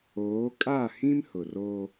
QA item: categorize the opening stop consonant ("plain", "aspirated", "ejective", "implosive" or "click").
ejective